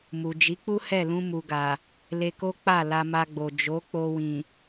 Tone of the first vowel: low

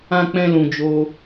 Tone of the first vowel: high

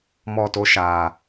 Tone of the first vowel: falling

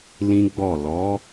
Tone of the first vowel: high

